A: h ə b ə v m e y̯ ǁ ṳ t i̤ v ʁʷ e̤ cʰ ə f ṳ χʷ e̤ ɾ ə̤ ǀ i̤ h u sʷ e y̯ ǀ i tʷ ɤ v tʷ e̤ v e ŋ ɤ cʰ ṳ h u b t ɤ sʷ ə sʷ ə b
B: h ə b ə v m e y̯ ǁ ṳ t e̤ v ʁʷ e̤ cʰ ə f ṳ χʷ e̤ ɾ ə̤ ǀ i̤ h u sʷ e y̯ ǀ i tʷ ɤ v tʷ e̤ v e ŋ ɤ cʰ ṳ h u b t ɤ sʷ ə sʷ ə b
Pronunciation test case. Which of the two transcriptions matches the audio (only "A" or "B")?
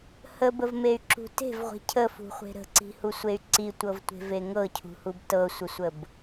B